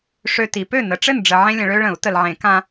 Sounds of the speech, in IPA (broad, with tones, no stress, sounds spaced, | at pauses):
ʂ ø˦ t i˨˦ p ø˥˨ n ə˨˦ ʈ͡ʂ ɘ˥˨ n ɖ͡ʐ ə˨ ʕ ẽ˦ lʲ ə̃˨ ɭ ø˦ ɭ ə̃˨˩˦ u̯ t ə˨ l ʕ ẽ˨˩˦ k ã˦